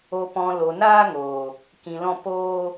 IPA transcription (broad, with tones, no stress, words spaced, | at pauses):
o˨pɔ̃˨ lo˨naː˦ŋoː˨ | kĩ˨lɔ̃˧ poː˧